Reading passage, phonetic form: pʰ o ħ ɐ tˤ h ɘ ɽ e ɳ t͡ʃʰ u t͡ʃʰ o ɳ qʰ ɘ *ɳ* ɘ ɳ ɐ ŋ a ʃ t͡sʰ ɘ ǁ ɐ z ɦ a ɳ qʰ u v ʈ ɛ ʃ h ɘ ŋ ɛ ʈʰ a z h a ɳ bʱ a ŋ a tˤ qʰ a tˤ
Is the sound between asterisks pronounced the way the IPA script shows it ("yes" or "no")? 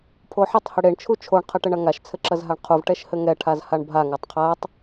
no